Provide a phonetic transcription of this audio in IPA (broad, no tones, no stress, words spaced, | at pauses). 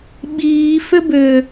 ɓiː fʏbʏ